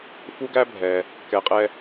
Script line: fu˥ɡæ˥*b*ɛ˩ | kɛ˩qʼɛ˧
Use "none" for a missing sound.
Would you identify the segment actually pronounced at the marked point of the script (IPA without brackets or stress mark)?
bʱ